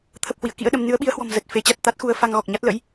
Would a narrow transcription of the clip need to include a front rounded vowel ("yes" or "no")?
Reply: no